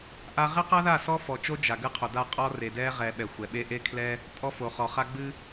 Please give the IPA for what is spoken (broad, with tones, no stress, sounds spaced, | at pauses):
ʔ a˦ ʁ e˦ q a˦ ð a˦˨ s ɔ˦ f ɔ˨ t͡ʃ o˦ d͡ʒ a˨ ɡ ɨ˦ qʰ o˨ d a˦˨ qʼ ɔ˦ r e˨ d ɛ˦ ʁ ɛ˨ ɓ ɛ˨ xʷ ɛ˨ ɓ e˦ ʔ e˦ kʰ l ɛ˦ | tʼ ɔ˦ f o˨ χ ɔ˨ χ a˦ ɡ͡b ɨ˦